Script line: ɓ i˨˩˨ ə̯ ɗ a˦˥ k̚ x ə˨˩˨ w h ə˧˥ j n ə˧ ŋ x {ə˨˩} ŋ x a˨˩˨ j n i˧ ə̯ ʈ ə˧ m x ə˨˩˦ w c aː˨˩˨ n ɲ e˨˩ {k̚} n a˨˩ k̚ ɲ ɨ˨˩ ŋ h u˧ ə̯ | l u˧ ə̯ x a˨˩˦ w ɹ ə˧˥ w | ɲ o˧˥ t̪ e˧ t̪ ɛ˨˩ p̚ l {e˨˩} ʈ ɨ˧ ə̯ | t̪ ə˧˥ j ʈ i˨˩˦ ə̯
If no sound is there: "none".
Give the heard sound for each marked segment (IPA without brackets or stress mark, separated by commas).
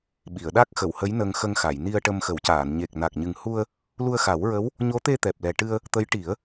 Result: ə˧, k̚, ɛ˨˩